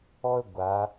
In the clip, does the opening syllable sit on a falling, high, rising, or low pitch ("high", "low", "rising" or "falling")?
high